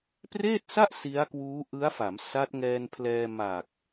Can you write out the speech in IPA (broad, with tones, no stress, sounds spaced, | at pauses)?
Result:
p r eː˥˩ t̚ s a˥˩ ʔ s i˦˥ a̯ k w uː˦˥ ʔ ɯ˦˥ a̯ f a˩˦ m s a˦˥ t̚ ŋ ɛː˧ n pʰ l ɛː˧ m a˨˩ k̚